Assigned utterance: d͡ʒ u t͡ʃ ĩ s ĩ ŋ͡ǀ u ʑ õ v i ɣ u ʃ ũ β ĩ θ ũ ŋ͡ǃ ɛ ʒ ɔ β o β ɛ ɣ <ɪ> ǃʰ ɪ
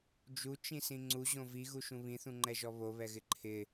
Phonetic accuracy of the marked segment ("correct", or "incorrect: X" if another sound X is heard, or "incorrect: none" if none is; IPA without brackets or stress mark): correct